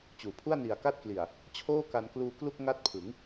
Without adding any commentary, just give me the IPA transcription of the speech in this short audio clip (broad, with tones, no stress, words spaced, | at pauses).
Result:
t͡ɕuː˩˦pʰu˥˩a̯ ni˨˩a̯ka˥˩t̚kli˨˩a̯ | t͡ɕʰoː˥˩ka˧nkluː˧klu˥˩k̚ ŋa˦˥t̚pʰɯ˩˦ŋ